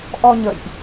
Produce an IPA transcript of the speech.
ʔ ɔ˧ ɲ ə̰ː˧˨ j ʔ

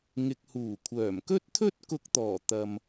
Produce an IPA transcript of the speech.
ŋ ɪ˨ k̚ h uː˨˩ kʷʰ œː˨˩ m k ɵ˥ t̚ t̪ʰ ɵ˥ t̚ k ʊ˧ k̚ t̪ ɔː˨˩ t̪ ɐ˨ m

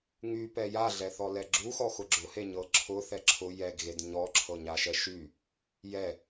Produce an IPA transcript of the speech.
ŋ y p ɛ j a ɮ ɛ θ ɔ l ɛ ɡ͡ǁ u x ɔ x ʊ ɡ͡ǁ ʊ h e ɲ ɤ ǁʰ ʊ θ ɛ ǁʰ ʊ j ɛ ɡ ɣ e d ɲ ɔ ǁʰ ɤ ɲ a ʃ ɛ ʃ y | j ɛ

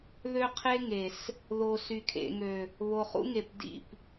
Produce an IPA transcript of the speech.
ð ø˦ qʰ e˦ ŋ e˨ s | ð o˨ s y˨ kʰ ḛ˨ ŋ ø˨ | β o˨ χ ṵ˦ ŋ e˨ p d ḭ˦˨ p

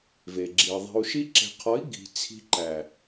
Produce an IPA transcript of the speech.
v e˨ ɡ͡ǁ i˨ ðˤ i̤˧ u̯ ʃ i˧ ǁ e̤˨ qʰ ɒ˨˦ i̯ ɡ i̤˨ t͡sʰ i̤˧ ǃ æ˨

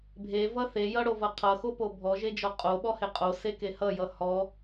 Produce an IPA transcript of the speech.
bʱ e v ʌ θ e j ʌ ɽ o v ʌ qʰ ʌ x o p o bʱ ɔ ʒ e d͡ʒ ɔ qʼ o ɓ ɔ h e qʼ o s e k e h ʌ j ʌ h ɔ

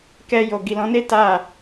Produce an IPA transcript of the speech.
k ɛ˧ j o˨ ɡ i˨ l ɔ̃˨˦ n e˦ t a˦˨

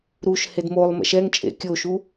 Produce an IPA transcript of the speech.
ɾ u ʃ h e d m o lˠ m ɛ̰ ʃ ɛ ŋ t͡ʃʼ ḛ kʲ o ʃ u

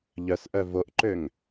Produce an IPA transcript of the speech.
ʎ œ s ʔ œ v o ʔ ǃ ø ŋ

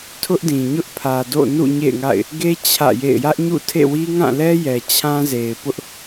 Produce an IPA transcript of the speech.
tʰ ʊ˦ ʔ d ĩ˨ ɲ ʊ˦ ʔ pʰ ä˨ d o̰˦˨ n ṵ˦˨ ɲ ḛ˦˨ ɪ̯ ŋ a̰˦˨ ɪ̯ | ɡ e˦ t͡ɕʰ ä̰˦˨ j ḛ˦˨ ɪ̯ j ä˦ ʔ ɲ ṵ˦˨ tʰ ḛ˦˨ w i˦ ŋ ã˦˨ l ɛ˦ j ɛ˨ t͡ɕʰ ã˦ z e˨ ɪ̯ p ʊ˦ ʔ

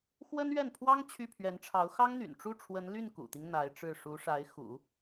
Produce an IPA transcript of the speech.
x w ə˥ n ɥ ɛ˥˩ n pʰ w ɑ˥ ŋ t͡ɕʰ y˥˩ pʰ ɥ ɛ˧˥ n ʈ͡ʂʰ ɑ˧˥ ʊ̯ x ɑ˥ ŋ n̪ y̰˨˩ n ʈ͡ʂ u˥˩ ʈ͡ʂʰ w ə˧˥ n l y˥˩ n k ṵ˨˩ t̪ i˦ ŋ n̪ a˧˥ ɪ̯ ʈ͡ʂ ɻ̩˥˩ ʂ u˧˥ ʂ a˧˥ ɪ̯ x ṵ˨˩˦

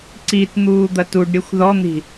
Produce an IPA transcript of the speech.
ǀ i t n̪ uː d̪ ɐ t u ɖ ɾʲ e xʷ ð ɔ n̪ i̤

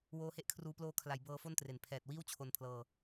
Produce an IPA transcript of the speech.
w oː˧ h e˥˩ ʔ kʰ r uː˧ p l oː˧ kʰ l a˩˦ j b ɤː˦˥ f o˥˩ n t r e˩˦ n pʰ ɛː˨˩ t̚ w iː˥˩ w t͡ɕʰ o˧ n pʰ l ɤː˧

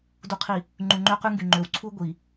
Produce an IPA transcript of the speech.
d u˨ qʰ i˨ | ŋ͡ǃ u˨ ŋ͡ǃ ø˦ q y˦ ŋ ɡ y˨ ŋ͡ǃ ø˨ w ǀʰ u˦ ɡʷ i˨

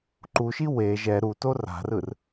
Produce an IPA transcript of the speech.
ǃ u ʃ i w e ʒ ɛ ɾ u t o r a̤ r ɯ r

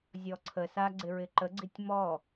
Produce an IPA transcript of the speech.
zʲ ɔ ǀʰ ə s a ɡ͡ǀ ɪ ɹ ɪ ǃ ə ɡ͡ǀ i tʲ m ɔ

